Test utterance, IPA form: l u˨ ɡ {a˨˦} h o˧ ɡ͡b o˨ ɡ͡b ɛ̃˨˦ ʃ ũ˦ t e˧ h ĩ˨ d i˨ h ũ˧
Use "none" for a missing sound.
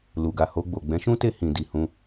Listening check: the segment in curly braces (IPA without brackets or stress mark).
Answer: a˨